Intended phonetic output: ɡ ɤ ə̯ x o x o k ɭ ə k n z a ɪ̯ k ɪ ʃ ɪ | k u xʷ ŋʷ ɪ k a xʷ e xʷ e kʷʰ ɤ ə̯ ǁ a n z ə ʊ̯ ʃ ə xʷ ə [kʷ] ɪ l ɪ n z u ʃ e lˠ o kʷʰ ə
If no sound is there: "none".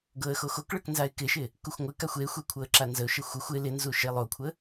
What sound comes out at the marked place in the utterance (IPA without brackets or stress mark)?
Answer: xʷ